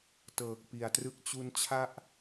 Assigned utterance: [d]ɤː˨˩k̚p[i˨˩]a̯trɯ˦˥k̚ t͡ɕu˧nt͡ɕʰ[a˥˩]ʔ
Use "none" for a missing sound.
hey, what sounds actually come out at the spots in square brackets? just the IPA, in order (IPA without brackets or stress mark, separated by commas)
t, i˨˩, a˥˩